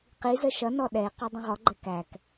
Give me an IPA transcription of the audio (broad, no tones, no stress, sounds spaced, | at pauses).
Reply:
q i z ə ʃ ʌ n ɔ ɗ ɛ ɪ̯ q ɒ dˤ ə̃ ʁ ɔ ɡ͡ǃ ɛ k æ k